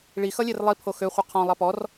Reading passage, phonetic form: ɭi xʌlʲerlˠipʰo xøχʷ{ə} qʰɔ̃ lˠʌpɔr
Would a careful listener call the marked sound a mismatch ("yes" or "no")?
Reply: yes